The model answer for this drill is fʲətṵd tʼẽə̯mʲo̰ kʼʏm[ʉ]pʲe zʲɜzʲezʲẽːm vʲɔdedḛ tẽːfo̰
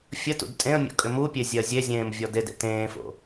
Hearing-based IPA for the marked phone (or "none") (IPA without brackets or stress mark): u